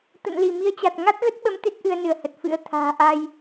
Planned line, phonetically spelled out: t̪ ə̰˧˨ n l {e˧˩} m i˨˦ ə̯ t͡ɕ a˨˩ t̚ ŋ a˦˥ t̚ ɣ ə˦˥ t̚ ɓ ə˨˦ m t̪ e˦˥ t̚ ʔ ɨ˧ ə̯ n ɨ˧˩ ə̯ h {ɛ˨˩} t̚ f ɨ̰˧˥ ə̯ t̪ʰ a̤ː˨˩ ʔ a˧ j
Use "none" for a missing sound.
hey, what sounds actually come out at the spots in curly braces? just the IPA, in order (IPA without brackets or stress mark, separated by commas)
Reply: i˧˩, ə˨˩